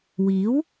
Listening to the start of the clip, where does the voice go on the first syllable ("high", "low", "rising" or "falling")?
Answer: rising